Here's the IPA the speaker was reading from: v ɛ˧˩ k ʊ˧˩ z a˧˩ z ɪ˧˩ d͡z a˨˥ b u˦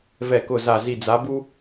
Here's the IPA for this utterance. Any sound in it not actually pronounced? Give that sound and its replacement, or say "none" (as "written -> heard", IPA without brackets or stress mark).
ɪ˧˩ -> i˧˩